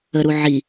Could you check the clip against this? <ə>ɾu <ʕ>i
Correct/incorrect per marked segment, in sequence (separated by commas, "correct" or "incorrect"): correct, correct